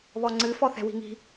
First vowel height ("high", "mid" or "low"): mid